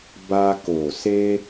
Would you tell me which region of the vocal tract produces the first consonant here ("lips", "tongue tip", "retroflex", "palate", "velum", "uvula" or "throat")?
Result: lips